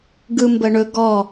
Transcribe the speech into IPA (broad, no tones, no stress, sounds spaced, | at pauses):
ɡ ɯ m b ə ɳ ɵ ɡ ɔ